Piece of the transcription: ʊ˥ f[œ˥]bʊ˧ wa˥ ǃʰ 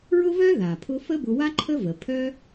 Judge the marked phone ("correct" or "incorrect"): incorrect